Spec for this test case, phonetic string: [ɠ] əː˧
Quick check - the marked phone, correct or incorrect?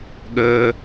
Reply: correct